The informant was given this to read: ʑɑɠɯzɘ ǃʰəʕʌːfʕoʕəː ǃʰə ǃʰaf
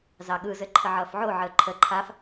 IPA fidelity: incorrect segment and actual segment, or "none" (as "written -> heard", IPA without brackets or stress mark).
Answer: ʑ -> z